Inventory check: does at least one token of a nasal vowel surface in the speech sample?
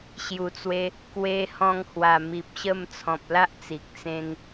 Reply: yes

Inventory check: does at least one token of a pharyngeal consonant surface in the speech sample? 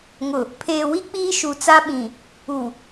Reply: no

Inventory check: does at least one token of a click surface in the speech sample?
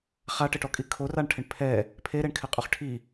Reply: no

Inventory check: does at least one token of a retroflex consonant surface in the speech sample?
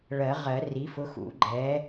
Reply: yes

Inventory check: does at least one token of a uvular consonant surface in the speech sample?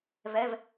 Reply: no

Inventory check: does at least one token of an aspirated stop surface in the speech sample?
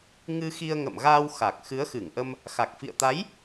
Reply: no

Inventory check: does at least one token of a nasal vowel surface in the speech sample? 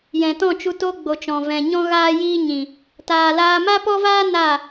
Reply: yes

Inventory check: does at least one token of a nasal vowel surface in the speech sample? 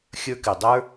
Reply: no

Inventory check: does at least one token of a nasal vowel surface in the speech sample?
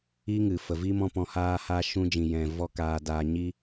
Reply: yes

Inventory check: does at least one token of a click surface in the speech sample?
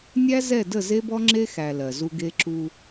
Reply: yes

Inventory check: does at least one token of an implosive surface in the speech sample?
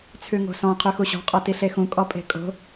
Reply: no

